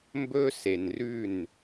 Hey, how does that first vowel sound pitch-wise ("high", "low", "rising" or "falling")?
high